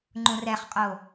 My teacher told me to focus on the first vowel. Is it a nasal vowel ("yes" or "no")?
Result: yes